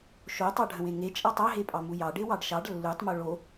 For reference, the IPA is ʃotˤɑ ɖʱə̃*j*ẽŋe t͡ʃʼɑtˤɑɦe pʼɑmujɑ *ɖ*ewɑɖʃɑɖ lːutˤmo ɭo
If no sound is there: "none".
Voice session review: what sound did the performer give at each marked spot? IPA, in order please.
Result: w, ɖ

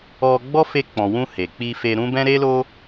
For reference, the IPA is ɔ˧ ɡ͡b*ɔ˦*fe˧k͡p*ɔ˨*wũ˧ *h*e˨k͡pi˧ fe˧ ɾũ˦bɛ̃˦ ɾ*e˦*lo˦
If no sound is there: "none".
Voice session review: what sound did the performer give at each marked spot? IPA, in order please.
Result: ɔ˦, ɔ̃˨, h, e˦

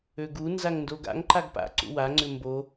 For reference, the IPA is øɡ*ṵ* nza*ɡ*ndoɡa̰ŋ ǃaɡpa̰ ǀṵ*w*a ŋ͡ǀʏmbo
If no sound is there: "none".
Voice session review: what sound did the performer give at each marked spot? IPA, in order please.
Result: u, ŋ, w

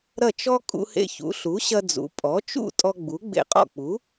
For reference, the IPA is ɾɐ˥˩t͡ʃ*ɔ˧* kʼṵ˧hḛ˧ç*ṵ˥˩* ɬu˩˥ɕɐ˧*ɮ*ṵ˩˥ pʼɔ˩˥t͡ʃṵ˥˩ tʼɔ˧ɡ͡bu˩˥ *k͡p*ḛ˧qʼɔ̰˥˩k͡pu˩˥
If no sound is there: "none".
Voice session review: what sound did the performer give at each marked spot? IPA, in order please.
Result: ɔ˥, ṵ˩˥, d͡z, ɡ͡b

